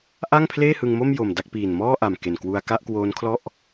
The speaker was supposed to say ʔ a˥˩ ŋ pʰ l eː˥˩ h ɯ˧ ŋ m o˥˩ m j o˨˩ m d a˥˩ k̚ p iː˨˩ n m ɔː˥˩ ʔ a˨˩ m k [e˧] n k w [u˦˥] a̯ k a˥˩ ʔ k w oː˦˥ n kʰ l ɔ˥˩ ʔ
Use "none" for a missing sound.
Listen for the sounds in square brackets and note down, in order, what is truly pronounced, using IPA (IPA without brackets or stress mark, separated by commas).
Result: e˨˩, u˧